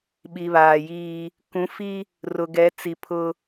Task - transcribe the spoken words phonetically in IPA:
ɓ i˨ β aː˨ j iː˦ | k ũ˨˦ f i˦ | r ʊ˨ ɡ ɛ˨˦ t͡s i˨ pʰ ʊ˦

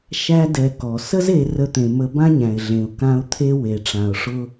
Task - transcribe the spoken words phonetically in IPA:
ʃ æ˦ d ɛ˧ k ɔ˨ s ə˦ z e˧ r ə˧ t̪ ẽ˨ m ə˧ b ã˦ ɲ æ̃˨ ɪ̯ ɮ ẽ˨ ʊ̯ k ã˧ ʊ̯ t̪ʰ e˦ w e˨ ʈ͡ʂ ã˨ ʊ̯ ʂ ʊ˦

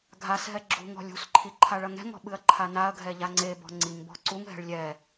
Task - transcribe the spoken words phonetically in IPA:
ɡʱ a s ɦ ɛ ɡ͡ǁ ṳ ŋ ɔ̤ lʲ ṳ s ǃʰ i ǃʰ a ɭ ɐ ŋ ɛ̤ ŋ ɔ̤ ɓ ɨ ɐ̯ ǃʰ a n a ɐ̯ ɡʱ ɛ ʎ a ŋ͡ǀ e b ɔ̤ ŋ͡ǀ i ŋ b ɔ̤ ǀ u ŋ ɦ ɛ̤ ɭ lʲ ɛ

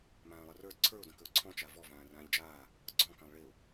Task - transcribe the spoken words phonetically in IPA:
m ãː lˠ ə r ə˞ d ǀʰ ə˞ ʊ̯ d ə̃ k ə ʊ̯ ǀʰ ɔ̃ t͡ʃ a v ɔ v ãː r ãː ʎ d͡ʒ aː | ɡ͡ǀ ɔ̃ k ã lˠ ɭ e ʊ̯

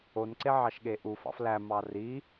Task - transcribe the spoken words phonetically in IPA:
o n ǀ e ʕ ɑ ʃ ɠ e ʔ u f ɑ̰ f l æ m ɑ r i

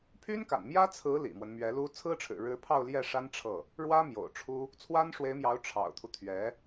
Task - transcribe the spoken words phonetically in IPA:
pʰ y˥ n k a̰˨˩ n m j ä˥ t͡sʰ ɹ̩˧˥ l ḭ˨˩ m w ə˦ n m ɥ ɛ˧˥ l u˥ t͡sʰ ɹ̩˥ ʈ͡ʂʰ ɻ̩˨˩ ɻ ɻ̩˧˥ pʰ ɑ˥˧ ʊ̯ l j ɛ˥˩ ʂ a˥ n ʈ͡ʂʰ ɤ˥˩ | ɻ w ä˥ m j o̰˨˩ ʊ̯ ʈ͡ʂʰ u˥ | t͡sʰ w a˥ n ʂ w e˧˥ ɪ̯ m j ɑ˧˥ ʊ̯ ʈ͡ʂʰ ɑ̰˨˩ ʊ̯ t̪ʰ u˦ t̪ʰ ɥ ɛ˧˥

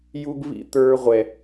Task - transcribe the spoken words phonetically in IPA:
j u˦ ɡ β ḭ˦ t̪ ə˞˦ ʁʷ ɛ˦

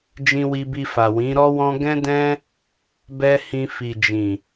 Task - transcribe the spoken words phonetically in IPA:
d͡ʒ ĩ˧ w i˧ b i˧ f a˨ w ĩ˨˦ ɾ ɔ˦ w ɔ̃˦ ɡ ɛ̃˦ d ɛ̃˦ | b ɛ˦ h ĩ˧ f i˨ d͡ʒ ĩ˨

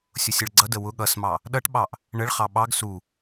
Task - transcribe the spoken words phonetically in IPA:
sʲ ʊ sʲ ə ɭ ɡ͡ǀ ʌ d ə w ʊ ɠ ʌ s m ɑ | ɗ ʌ ʈ ɓ ɑ ʔ | ɳ ə ɭ χ ɑ ɓ ɑ ɡ s u

